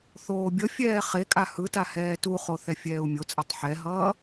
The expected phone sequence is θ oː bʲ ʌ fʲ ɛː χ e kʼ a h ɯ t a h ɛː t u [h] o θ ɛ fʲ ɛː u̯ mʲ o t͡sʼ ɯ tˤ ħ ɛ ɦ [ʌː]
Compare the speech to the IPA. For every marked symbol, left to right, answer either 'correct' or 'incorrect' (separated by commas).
incorrect, correct